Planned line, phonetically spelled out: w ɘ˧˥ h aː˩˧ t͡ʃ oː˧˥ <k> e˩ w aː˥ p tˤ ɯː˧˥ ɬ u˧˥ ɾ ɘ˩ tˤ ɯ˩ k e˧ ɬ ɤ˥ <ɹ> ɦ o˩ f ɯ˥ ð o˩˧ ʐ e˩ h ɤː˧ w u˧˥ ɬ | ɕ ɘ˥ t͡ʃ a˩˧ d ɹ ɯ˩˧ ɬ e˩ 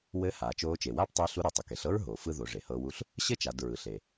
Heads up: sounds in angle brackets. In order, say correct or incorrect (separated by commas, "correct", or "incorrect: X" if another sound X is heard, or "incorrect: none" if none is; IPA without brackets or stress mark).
incorrect: t͡ʃ, correct